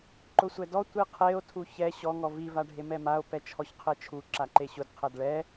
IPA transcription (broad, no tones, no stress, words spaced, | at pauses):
ǃʊsʷɛdɔ tʷiqʰeo̯ tʰuçɛ ɕɔ ŋɔvi vaɖʱemɛmao̯ pɛt͡ʃʰɔçqʰet͡ʃʰu ǁaǃeɕʊd qʰɛdɭɛ